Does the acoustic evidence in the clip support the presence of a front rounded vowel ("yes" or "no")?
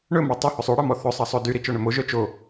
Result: yes